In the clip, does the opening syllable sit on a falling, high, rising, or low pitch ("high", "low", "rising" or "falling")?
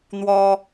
high